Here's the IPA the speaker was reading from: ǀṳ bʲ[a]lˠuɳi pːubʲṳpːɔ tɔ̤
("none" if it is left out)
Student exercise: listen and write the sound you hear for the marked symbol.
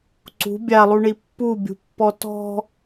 a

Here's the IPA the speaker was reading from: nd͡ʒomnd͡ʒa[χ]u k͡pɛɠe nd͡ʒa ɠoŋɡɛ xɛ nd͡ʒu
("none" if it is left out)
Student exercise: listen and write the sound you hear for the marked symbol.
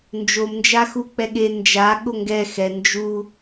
x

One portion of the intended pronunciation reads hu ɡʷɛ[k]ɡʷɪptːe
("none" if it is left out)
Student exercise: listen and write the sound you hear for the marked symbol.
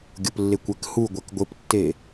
k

